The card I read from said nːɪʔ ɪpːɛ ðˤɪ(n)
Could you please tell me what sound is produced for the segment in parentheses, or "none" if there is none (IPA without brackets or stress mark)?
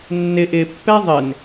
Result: n